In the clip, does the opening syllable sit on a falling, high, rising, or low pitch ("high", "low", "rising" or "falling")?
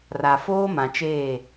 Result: low